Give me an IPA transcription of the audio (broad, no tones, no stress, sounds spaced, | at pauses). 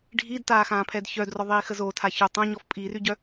ɖʱ i d t aː x ãː pʰ ɛ d ç œ d r ɔ ðˤ iː x ə z o tʰ a ç o tˤ œ̃ ɲ ɔ f pʼ i r y ɟ œ